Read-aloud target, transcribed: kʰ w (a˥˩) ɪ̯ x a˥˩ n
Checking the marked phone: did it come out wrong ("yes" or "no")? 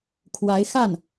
yes